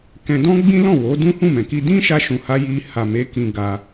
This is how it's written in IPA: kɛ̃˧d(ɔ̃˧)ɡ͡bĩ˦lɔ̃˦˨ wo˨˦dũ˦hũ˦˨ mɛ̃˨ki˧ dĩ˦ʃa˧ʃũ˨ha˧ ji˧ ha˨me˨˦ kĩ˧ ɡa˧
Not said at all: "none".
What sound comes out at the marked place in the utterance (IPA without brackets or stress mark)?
ɔ̃˦